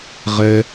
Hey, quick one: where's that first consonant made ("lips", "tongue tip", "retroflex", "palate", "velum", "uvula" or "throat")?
uvula